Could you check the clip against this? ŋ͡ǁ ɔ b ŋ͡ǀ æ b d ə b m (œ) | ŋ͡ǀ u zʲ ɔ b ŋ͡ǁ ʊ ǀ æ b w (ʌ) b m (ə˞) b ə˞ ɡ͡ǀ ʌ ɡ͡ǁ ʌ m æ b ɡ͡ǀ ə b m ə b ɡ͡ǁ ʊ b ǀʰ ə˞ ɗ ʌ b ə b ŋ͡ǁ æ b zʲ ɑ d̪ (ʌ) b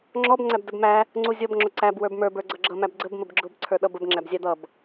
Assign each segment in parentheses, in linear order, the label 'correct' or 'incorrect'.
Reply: incorrect: æ, incorrect: ə˞, correct, correct

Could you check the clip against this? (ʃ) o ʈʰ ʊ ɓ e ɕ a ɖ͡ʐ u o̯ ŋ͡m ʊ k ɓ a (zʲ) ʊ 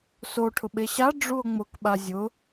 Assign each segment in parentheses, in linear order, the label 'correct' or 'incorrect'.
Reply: incorrect: s, correct

